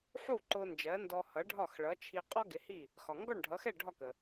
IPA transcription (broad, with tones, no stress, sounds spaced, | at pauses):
ħ u˥˩ ǃ ʊ˧ n d͡ʒ ɜ˩˥ n d ɔ˧ h ʌ˩˥ ɖʱ ɒ˥˩ x ɭ ʌ˩˥ t͡ʃʰ i˧ qʼ ɔ˥ ɡ ɪ˩˥ h i˥˩ | x ɒ˩ ŋ ɡ ɔ˥˩ ɳ ɖʱ ʌ˩˥ x ɛ˥˩ ɖʱ ɒ˥˩ k ə˩